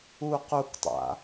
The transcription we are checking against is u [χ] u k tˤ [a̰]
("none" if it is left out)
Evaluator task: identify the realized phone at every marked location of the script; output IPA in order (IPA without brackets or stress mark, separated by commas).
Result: q, a̰